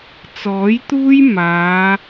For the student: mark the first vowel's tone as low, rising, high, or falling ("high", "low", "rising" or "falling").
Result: rising